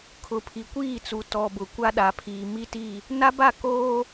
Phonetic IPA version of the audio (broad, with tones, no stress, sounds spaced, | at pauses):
kʰ ʊ˨ pʰ i˨ kʷ iː˦˨ t͡s u˨ t ɔ˨ b ʊ˨ kʷ a˦ ɗ a˨ pʰ iː˨ m i˦ t i˦˨ | n a˦ b a˦˨ k oː˦